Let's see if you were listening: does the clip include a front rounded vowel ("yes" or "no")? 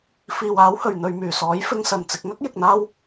yes